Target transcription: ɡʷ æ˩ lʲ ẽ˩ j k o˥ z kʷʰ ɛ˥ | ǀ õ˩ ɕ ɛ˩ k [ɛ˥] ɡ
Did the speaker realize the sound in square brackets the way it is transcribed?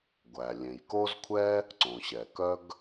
no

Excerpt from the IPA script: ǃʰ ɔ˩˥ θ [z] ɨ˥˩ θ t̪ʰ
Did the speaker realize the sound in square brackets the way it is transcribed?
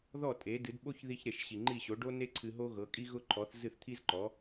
yes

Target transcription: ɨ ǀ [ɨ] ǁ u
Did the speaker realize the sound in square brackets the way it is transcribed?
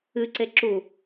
no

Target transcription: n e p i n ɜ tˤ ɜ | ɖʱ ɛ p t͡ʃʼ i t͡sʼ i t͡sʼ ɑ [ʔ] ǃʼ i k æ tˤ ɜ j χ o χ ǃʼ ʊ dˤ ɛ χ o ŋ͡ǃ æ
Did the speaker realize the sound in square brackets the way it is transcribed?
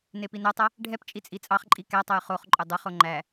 no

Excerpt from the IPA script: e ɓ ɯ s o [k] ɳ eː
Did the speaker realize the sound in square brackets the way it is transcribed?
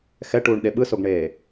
no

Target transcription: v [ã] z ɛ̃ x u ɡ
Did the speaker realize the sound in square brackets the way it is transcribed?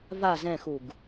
no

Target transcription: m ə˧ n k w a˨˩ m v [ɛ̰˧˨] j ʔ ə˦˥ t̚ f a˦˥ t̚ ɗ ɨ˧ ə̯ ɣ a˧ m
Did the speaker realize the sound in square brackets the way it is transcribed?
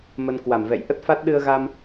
yes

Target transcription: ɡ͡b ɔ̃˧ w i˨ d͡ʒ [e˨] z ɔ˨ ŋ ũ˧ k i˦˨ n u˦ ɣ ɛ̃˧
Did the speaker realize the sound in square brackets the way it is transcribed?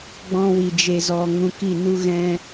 yes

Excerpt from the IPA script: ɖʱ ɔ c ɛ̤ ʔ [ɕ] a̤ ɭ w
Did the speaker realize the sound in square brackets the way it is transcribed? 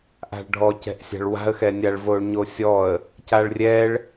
no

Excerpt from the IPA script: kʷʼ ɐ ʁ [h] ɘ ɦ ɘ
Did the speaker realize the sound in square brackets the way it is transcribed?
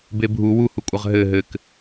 no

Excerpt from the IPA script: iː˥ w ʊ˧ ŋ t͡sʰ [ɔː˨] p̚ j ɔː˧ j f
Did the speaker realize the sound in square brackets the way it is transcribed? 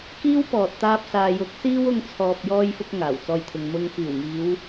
yes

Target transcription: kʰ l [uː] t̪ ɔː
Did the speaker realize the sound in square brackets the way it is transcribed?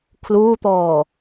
yes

